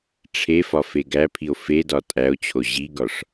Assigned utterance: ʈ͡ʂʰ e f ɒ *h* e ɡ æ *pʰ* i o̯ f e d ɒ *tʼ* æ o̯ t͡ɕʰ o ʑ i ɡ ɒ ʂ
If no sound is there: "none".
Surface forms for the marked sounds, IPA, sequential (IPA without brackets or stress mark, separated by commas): f, pʰ, tʼ